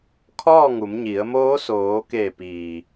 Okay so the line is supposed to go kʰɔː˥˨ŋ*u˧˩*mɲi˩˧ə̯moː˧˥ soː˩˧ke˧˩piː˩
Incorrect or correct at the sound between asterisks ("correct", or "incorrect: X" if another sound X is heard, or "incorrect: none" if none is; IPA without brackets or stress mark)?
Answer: incorrect: u˩˧